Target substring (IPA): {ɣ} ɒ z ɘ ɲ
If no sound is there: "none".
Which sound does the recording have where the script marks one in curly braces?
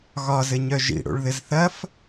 ɣ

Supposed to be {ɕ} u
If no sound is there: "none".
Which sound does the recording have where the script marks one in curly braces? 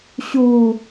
ɕ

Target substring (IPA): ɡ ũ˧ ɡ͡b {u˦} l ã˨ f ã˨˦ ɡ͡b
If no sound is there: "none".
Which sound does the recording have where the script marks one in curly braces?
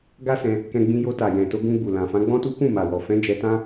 u˨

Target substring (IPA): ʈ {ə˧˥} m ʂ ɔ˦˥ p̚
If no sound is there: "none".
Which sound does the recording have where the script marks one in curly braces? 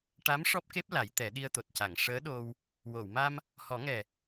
a˧˥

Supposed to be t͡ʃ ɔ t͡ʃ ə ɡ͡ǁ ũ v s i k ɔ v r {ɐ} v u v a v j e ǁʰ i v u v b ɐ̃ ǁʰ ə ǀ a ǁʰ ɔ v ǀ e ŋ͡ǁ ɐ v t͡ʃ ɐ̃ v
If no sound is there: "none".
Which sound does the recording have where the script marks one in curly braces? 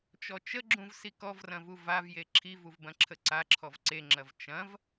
ɐ̃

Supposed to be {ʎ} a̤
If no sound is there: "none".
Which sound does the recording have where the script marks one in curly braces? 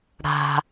ɽ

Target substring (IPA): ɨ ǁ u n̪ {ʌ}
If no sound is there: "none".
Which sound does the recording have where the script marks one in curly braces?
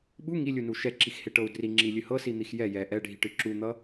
ʌ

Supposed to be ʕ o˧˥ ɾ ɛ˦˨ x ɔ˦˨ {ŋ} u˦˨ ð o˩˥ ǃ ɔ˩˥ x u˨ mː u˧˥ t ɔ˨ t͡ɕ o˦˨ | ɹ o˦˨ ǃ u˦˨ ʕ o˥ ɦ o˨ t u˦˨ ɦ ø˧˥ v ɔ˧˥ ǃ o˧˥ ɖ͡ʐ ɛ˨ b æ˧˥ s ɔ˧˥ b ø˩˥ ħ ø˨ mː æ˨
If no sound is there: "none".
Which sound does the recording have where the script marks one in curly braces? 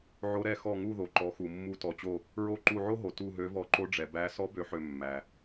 ŋ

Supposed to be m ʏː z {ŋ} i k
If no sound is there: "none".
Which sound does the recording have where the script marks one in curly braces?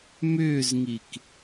ŋ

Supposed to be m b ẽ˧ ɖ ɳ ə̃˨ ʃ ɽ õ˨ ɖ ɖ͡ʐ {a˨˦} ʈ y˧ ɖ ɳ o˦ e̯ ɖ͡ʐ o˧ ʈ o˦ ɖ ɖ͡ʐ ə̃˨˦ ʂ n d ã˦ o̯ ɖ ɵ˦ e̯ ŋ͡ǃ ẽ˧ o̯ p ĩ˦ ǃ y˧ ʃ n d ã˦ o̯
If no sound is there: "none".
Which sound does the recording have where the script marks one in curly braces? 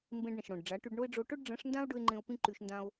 a˨˦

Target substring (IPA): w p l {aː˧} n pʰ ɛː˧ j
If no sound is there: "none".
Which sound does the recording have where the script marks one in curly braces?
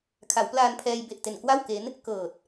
aː˧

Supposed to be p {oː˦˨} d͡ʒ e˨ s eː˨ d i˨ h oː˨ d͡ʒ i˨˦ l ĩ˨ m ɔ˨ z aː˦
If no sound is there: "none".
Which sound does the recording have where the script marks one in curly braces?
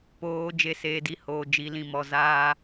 oː˨˦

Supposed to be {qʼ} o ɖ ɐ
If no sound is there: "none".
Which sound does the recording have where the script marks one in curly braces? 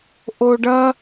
ʔ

